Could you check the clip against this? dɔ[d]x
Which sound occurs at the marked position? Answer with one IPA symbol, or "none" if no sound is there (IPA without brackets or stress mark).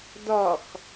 none